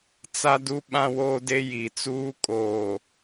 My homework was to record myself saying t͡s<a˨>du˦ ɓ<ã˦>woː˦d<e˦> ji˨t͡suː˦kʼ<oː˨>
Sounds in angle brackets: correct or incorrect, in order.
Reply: incorrect: a˦, correct, correct, correct

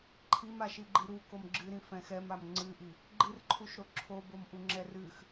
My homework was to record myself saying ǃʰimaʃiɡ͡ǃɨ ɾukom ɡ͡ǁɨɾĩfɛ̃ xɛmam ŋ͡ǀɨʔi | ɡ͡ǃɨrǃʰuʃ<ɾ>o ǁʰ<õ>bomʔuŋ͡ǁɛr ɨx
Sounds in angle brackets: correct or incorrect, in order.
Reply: correct, incorrect: o

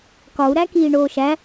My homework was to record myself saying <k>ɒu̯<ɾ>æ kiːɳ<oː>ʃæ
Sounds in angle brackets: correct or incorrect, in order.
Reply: correct, correct, correct

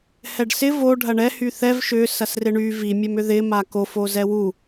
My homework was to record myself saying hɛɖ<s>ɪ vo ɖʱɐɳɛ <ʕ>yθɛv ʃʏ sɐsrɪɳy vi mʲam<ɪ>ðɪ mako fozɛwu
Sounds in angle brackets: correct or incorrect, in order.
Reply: correct, incorrect: h, incorrect: ʏ

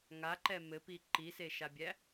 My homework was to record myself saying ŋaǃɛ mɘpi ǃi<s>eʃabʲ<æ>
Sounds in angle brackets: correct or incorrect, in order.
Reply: correct, correct

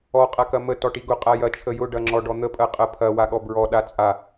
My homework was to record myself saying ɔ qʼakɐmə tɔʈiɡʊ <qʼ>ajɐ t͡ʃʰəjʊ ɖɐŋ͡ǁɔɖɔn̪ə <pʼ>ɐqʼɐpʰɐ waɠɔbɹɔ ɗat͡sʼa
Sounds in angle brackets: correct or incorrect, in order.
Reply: correct, correct

